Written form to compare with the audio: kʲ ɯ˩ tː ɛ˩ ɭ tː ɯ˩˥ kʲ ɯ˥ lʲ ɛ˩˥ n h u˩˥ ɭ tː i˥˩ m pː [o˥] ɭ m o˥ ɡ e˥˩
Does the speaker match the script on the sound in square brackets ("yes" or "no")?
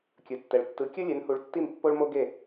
yes